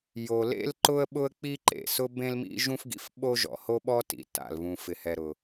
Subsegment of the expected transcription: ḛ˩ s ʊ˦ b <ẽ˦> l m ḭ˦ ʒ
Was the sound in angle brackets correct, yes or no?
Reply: yes